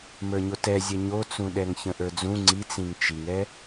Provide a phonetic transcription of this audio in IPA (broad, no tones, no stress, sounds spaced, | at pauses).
m ə˞ ɲ o t ɛ zʲ ɛ ɲ o t͡s ũ ɗ ɛ ŋ ç ə̃ ʔ ə˞ d͡z ũ ŋ͡ǀ i t͡s ĩ ŋ t͡ʃ i ŋ ɛ